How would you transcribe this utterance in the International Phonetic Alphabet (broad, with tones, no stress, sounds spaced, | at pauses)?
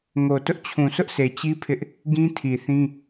ŋ o˨ t ʊ˦ ʔ t͡ɕʰ ũ˨ sʰ ʊ˦ ʔ s e˨ t͡ɕ i˦ pʰ ɪ˦ ʔ | ɡ ĩ˦ tʰ i˨ θ ĩ˦